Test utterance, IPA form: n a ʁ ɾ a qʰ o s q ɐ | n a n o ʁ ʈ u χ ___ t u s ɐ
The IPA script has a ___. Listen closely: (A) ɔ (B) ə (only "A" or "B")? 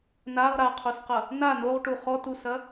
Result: A